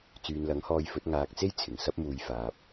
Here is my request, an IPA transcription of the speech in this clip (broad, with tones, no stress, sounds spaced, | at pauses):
t͡s yː˨ n l ɐ˨˥ ŋ h ɔː˧ j f ɵ˨˥ t̚ ŋ aː˨ k̚ t͡s e˥ j t͡sʰ ɪ˨˩ ŋ s ɐ˥ p̚ m uː˨ j f aː˨ p̚